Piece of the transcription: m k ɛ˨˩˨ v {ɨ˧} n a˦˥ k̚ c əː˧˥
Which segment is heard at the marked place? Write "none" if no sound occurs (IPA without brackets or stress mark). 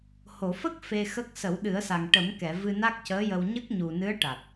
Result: ɨ˧